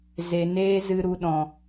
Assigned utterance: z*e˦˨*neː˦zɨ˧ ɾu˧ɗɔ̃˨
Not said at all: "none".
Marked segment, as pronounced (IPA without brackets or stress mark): e˨